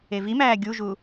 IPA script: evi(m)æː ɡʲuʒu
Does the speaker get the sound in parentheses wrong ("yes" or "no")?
no